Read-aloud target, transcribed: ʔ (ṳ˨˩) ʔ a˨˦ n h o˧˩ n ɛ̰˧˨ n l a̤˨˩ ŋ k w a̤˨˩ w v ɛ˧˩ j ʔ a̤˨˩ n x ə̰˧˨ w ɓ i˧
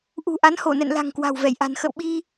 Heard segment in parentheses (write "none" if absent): ṳ˨˩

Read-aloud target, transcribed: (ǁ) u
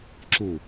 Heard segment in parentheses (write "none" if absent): ǁ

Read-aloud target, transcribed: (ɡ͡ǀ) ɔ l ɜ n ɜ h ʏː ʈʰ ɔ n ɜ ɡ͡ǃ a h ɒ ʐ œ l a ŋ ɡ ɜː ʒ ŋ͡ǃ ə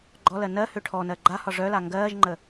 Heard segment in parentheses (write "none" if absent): ɡ͡ǃ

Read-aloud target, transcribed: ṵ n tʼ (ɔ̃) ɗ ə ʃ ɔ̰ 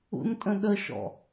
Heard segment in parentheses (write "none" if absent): ə̃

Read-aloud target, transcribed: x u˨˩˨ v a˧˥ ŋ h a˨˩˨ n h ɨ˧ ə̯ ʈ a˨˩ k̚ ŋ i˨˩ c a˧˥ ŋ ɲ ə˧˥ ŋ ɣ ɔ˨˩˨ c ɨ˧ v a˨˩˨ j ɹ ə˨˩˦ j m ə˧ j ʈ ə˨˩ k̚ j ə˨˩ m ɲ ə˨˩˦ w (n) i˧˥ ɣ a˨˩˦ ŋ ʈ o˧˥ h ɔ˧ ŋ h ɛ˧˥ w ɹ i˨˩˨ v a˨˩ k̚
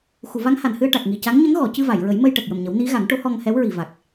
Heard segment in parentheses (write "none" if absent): n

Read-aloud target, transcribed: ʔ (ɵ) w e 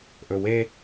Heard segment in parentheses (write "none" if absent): ɵ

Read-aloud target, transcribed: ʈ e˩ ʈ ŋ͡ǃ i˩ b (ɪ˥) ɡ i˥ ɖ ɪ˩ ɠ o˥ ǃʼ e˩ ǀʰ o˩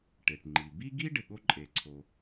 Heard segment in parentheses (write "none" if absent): i˥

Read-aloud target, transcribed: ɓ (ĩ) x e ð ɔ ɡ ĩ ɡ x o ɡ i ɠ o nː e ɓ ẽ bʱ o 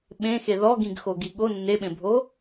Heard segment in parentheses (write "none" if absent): ẽ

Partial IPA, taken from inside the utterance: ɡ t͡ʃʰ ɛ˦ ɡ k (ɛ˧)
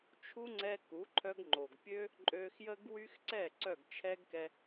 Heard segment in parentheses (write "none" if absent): ɛ˧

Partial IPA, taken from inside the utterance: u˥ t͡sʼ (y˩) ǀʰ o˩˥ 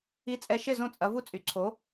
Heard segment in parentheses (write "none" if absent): y˩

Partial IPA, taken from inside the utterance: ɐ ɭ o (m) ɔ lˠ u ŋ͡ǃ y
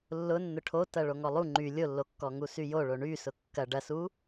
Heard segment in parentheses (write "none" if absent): ŋ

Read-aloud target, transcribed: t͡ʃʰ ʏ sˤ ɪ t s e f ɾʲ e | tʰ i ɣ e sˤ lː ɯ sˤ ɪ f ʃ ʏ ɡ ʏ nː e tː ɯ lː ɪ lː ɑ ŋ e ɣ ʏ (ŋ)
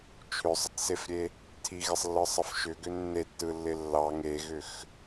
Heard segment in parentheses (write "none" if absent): x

